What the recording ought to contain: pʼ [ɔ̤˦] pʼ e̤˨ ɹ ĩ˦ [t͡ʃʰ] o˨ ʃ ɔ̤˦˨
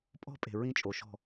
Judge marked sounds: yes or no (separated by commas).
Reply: yes, no